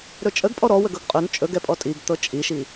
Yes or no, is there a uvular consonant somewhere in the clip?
yes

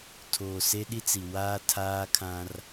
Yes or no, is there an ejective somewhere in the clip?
no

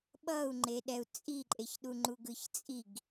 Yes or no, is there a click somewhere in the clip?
yes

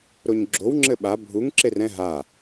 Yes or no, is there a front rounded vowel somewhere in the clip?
no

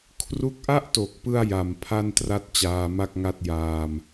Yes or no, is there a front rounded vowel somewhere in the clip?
no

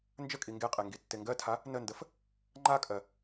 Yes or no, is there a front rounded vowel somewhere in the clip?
no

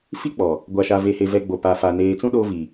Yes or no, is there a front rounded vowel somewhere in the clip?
no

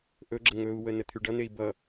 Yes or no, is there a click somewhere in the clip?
yes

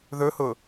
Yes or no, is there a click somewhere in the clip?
no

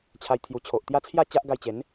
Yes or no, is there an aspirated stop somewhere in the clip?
yes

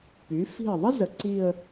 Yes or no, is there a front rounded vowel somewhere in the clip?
yes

